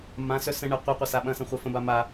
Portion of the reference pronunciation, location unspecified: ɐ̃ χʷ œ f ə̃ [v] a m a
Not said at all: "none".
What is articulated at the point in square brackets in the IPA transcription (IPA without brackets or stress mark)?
b